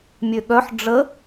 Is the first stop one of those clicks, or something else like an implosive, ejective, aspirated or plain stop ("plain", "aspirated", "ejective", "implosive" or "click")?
implosive